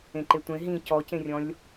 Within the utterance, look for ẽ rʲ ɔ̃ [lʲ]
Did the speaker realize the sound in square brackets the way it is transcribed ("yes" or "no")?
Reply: yes